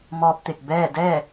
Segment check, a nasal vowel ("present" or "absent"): absent